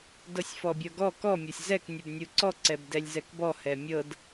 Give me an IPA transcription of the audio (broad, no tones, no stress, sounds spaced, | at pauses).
d ɤ sʲ f ɔ bʲ ɤ ɡ ɔ k ɔ mʲ ɔ sʲ z ɛ k nʲ u b nʲ u ǀ ɔ ǀ ɛ b d ɛ lʲ z ɛ k b ɔ h ɛ mʲ ɤ d